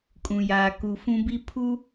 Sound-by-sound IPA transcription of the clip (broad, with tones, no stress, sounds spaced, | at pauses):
kʼ ũ˨ j aː˨ k u˨ f ũ˦ b i˦ pʰ u˦